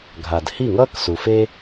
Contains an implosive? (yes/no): no